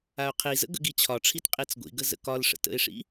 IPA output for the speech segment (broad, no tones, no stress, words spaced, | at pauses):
aʊ̯qʰizə̰ ɡə̰ɡit͡ɕʰɒʈ͡ʂʰit qʼit͡sɡʷḭɡə zə̰kɒlʂə̰ tə̰ɪ̯ʂḭ